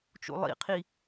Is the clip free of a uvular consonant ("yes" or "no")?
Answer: no